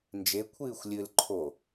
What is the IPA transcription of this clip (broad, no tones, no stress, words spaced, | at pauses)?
nd͡ʒe kʷʰɨːxʷlʲɨl ǃʰo